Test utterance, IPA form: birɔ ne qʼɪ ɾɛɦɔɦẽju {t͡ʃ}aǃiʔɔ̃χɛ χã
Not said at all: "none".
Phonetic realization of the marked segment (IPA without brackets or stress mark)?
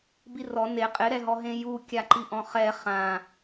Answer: kʲ